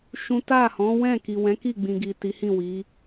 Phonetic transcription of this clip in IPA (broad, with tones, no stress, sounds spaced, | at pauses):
ʃ ũ˦ t a˦˨ h ɔ̃˨˦ w ɛ̃˦˨ k i˨ w ɛ̃˨˦ k i˦˨ ɡ͡b ĩ˨ ɡ i˨ t i˨˦ h ĩ˦˨ w i˨˦